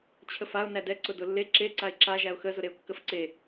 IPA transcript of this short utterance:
t͡ɕʰ ə f a ʊ̯ n æ d ɛ ǀ ʊ d ʊ lː e ǁ e ǀ a ɪ̯ ǁ a ʒ æ ʊ̯ x ə z ʊ ɾ e ʊ̯ kː ə f ǀ e

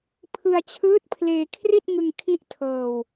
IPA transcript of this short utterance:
pʰ ɯ˧ a̯ t͡ɕʰ ɯː˦˥ t̚ pʰ l eː˧ kʰ r i˥˩ t̚ ŋ ɯ˧ ŋ kʰ i˥˩ ʔ tʰ ɤː˧ w

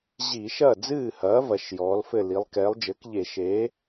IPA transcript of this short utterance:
ʑ i˧˩˧ ʃ ɐ˥˩ d͡z ɨː˥˩ h ɐː˩˥ v ɐ˩˥ ʃ j ɔː˩˥ l f ɘ˥˩ l i˩˥ lˠ k ɛː˩˥ lˠ d͡ʒ ɘː˩˥ k ʎ e˧˩˧ ʃ e˩˥

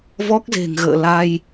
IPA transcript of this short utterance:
v ɔ˦˥ k̚ z e̤˨˩ ŋ ɣ ə̰ː˧˨ l a˧ j

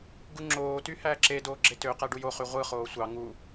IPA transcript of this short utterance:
ɡ u ŋ͡ǁ oː t y h æː ǁ e d oː ɡ͡ǁ e t ø q æ ɖ u j o χ y ʁʷ ɯ χ oː sʷ ɑ ŋ u

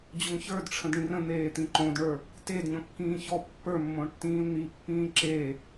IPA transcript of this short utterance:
d͡ʑ o ŋ ç ə˞ d ʈ͡ʂʰ ə̃ d ɳ ĩ r ə̃ n̪ eː t̪ ĩ ǃ õ d ɳ ə˞ | t e d ɲ ɔ̃ kː ĩː ç ɔ pː ə˞ mː õ ɳ tː ĩː l n̪ i pː ĩː ǁ e

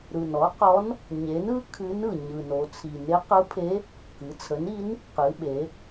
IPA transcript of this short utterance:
ɾ ɯ˨˩ n ɔ˩˥ q ɔ˧˥ n | ɲ e˩˥ n ɯ˧˥ kʰ ɨ˧˥ n ɯ˨˩ ɲ ɯ˨˩ n o˩˧ t͡sʰ i˨˩ n e˧˥ q ɯ˧˥ pʰ e˧˥ | k ɨ˩˧ t͡sʰ ə˩˥ n i˧˥ n | q ɨ˩˧ ɓ e˩˧

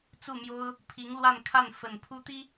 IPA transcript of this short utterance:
t͡s u˥˩ m j o˥ ʊ̯ | pʰ i˧˥ ŋ l w a˥˧ n kʰ a˥˩ n f ə˨˩ n pʰ u˥ t̪ i˥

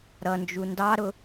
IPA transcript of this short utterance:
ɾ ʌ n d͡ʒ u n d ɑ ɾ ʊ

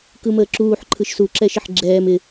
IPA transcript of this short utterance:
k ɯ m əː ǁ uː ħ ǃʰ ɯ ʃ s u ǁ ɛ ʃ ɪ ħ ɡ͡ǁ ɛː m ɪ

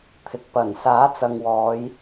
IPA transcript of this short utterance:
t̪ʰ ɪ˨ k̚ p ɐ˨˩ n s aː˨˥ t͡s ɐ˨ ŋ w ɔː˨˧ j

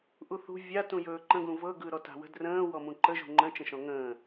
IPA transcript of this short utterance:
ʔ u θ ṳ vʲ a t ũ j ɵː ǃ ə̃ ɡ ũ v ɤ ɡ ɯː ɾ ɔ t a̤ w ə̤ d r ə̃ː w ɔ m ũ ǃ ə ʒ ṳ ŋ͡ǃ ə̃ t͡ʃ ə̃ ʃ ɔ̃ ŋ ə̃ː

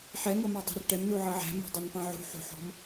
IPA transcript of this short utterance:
ħ ɛ ŋ ɤ m ɑ dˤ æ̤ r ʈ ɛ m n u ʕ ɤ ʕ æ̤ m ɔ̤ dˤ ɜ n p ɑ̃ ʕ ṳ ħ ṳ ħ ɔ̤ m

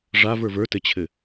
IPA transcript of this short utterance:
ʐ a v ə˞ v ə˞ t ɘ t͡ɕʰ ɘ

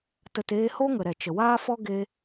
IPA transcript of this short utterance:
t ə˨ t eː˧ h o˦ ŋ ə˨ ɾ ɛ˨ t͡ʃ ə˨ w aː˦ f ɔ˦ ɡ e˧

